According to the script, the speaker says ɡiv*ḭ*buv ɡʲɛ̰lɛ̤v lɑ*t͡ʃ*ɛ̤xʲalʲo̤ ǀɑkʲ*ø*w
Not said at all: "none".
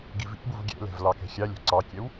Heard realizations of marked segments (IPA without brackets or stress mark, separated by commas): ḭ, k, ɛ